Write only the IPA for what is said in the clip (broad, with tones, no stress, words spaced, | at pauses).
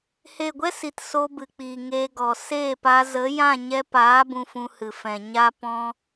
he˦˨ ɡʷɛ˦si˨t so˧bɨ˨k͡piː˨ ŋeː˧ɡɔ˨ seː˦˨paː˧ zə˨˦jã˦˨ ɲɛ˧ paː˨˦ bũ˧fũ˧hɨ˨ fɛ̃˨ɲa˦pɔ̃˦